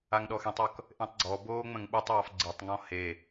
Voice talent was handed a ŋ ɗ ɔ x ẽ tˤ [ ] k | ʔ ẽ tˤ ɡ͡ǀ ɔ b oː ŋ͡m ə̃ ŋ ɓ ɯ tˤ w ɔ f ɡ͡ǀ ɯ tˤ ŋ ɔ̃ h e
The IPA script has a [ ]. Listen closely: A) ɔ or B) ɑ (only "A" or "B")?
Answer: A